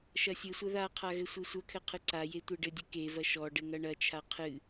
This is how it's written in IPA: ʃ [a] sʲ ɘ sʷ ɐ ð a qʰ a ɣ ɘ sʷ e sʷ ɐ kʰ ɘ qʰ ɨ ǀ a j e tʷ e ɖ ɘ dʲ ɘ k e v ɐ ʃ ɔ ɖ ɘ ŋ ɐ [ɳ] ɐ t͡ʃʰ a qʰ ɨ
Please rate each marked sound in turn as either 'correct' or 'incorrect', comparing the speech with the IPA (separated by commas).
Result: incorrect, correct